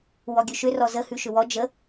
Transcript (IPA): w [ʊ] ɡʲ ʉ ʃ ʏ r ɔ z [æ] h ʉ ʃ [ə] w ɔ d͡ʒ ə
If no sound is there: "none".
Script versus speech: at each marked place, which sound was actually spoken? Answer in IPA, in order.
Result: ɔ, ə, ʏ

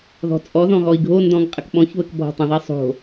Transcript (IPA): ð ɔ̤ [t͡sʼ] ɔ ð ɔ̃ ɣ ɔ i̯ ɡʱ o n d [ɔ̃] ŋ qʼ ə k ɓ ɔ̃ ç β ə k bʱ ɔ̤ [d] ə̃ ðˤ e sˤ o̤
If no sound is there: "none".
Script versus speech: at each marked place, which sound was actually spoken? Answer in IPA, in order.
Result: t͡sʼ, ɔ̃, tˤ

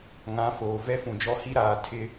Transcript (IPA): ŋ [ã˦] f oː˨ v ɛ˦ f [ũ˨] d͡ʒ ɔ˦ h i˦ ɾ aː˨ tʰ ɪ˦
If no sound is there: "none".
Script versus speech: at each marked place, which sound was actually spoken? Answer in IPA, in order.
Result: ã˨˦, ũ˨

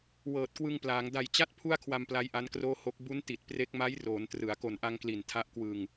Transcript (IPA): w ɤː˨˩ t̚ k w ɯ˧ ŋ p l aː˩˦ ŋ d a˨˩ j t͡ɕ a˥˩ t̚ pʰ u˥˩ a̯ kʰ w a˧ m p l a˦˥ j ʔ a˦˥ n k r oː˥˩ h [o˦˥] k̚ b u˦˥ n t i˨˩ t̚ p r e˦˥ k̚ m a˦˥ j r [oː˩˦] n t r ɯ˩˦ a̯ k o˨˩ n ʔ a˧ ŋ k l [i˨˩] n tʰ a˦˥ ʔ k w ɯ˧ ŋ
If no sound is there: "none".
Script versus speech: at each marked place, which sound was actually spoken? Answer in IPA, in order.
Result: o˦˥, oː˩˦, i˨˩

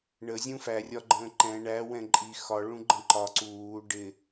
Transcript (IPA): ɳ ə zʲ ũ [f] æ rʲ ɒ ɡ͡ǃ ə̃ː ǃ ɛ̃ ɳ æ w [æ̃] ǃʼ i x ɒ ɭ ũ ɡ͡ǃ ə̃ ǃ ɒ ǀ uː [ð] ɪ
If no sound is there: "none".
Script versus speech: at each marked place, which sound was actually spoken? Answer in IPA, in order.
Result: f, ɛ̃, ɖ

